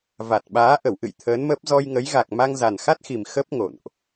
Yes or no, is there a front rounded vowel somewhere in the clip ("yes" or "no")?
no